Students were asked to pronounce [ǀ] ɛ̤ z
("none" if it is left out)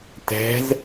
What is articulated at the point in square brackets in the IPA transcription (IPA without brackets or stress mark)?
t